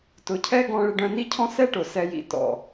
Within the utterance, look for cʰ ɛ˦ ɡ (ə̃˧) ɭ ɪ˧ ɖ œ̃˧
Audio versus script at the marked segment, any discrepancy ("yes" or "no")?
yes